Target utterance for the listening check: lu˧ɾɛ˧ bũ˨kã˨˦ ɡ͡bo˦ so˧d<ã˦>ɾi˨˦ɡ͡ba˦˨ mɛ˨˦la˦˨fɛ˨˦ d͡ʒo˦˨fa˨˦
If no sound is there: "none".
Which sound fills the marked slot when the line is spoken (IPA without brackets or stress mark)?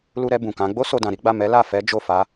ã˨